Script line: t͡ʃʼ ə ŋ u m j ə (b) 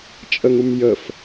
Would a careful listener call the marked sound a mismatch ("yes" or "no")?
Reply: yes